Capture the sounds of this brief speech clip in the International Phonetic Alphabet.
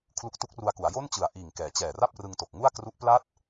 kʰlu˦˥k̚tu˦˥k̚ru˧a̯ku˩˦a̯ jo˥˩nt͡ɕɯ˨˩a̯ʔiː˨˩ŋ kɛː˩˦t͡ɕɛː˨˩ra˥˩p̚ rɯ˧ŋto˨˩k̚ŋu˥˩a̯ kru˦˥ʔpla˥˩t̚

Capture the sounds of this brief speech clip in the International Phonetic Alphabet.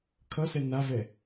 kʰʌsɛ navɛ

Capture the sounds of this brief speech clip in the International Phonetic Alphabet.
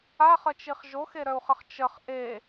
aχət͡ʃiχ ʒoxeɾœu̯χəχ t͡ʃəχ ʔe

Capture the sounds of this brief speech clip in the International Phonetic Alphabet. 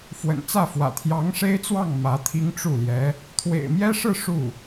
fwə̰˨˩nt͡sä˥˩fwä̰˨˩ t̪ʰjɑ˧˥ŋʂe˥ɪ̯t͡swɑ˥˩ŋ mä˧˥t̪ʰi˥ŋʈ͡ʂu˥˩ljɛ˧˥ | t̪ʰwḛ˨˩ɪ̯mjɛ˥ʂɻ̩˥˧ ʂu˥˩

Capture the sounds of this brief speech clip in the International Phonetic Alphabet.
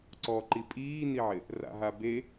ǀɔǃi pʼiːniʕɪ | ra̰ɦabe

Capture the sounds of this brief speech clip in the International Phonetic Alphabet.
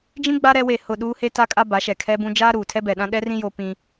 d͡ʒĩ˦ɡ͡ba˦ ɾɛ˦we˦˨hʊ˦˨ ɗuː˦he˦ta˦kʼa˦ ba˨˦ʃɛ˨kʰɛ˦bũ˦ d͡ʒaː˦ ɾuː˨tʰɛ˦ bɛ˨ɗã˦ɗɛ˦rĩ˦ jo˦ pĩ˦

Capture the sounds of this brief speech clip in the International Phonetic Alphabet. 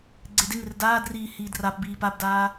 ɡ͡ǀedeŋɪr daːdriː hiːdrapbiː pabdaː

